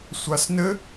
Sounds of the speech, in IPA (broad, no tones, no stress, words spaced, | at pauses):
sʷasnɘ